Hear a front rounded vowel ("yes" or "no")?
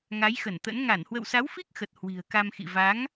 no